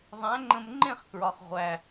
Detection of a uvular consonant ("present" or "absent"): present